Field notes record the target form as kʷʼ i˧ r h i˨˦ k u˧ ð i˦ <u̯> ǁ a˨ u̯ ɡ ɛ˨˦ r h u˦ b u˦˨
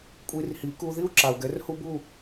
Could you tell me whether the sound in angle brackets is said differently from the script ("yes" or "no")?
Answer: no